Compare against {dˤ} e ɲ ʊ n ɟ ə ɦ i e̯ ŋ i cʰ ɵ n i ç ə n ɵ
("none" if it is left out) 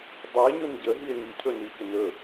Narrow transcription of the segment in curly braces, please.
dˤ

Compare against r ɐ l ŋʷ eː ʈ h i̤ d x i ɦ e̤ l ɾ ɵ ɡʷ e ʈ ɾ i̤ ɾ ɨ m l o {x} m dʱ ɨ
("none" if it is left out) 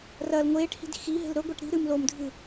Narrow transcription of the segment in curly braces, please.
none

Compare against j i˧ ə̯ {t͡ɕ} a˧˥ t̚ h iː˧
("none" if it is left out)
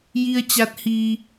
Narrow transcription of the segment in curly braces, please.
t͡ɕ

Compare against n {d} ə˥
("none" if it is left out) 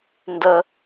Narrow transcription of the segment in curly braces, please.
d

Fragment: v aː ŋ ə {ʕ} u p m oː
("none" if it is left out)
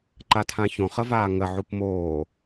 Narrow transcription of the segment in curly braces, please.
ʕ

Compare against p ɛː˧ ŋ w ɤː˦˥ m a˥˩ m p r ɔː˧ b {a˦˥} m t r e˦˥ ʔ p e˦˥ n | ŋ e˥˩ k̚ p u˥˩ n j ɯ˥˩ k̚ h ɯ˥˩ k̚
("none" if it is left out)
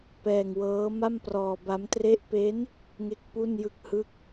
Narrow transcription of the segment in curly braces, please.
a˦˥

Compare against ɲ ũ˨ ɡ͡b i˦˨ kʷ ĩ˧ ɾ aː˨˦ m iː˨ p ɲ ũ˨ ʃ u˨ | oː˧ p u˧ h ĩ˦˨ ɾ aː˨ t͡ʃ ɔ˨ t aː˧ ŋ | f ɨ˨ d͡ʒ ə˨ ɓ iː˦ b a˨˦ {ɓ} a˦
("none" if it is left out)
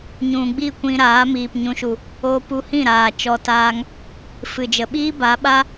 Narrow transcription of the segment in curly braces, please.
ɓ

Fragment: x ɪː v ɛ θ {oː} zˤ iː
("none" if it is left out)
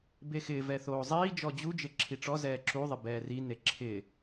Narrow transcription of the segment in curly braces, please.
oː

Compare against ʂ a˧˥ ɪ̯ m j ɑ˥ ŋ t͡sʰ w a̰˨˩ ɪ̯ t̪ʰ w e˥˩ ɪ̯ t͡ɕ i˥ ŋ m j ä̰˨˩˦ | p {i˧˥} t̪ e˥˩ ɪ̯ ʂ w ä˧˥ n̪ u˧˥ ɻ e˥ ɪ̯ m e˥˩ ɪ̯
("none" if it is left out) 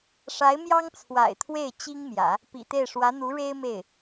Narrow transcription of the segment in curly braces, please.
ḭ˨˩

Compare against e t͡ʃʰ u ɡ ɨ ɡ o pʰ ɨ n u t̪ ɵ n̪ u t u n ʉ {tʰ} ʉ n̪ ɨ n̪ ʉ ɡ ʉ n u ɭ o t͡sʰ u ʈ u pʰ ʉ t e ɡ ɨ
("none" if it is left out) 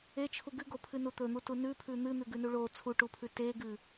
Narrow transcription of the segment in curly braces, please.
pʰ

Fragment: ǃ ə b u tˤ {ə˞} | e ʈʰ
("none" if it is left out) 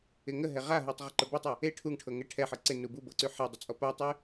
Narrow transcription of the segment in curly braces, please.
ʌ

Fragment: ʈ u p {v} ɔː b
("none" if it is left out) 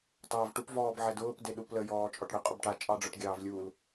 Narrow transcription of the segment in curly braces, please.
v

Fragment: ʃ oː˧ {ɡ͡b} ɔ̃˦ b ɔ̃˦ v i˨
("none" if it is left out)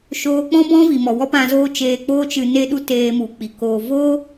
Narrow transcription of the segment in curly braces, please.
k͡p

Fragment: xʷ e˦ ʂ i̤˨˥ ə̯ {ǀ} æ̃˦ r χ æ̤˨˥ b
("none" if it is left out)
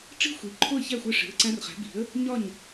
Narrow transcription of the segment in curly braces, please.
ǀ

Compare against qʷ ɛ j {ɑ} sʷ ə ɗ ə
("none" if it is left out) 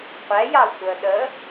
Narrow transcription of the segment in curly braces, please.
ɑ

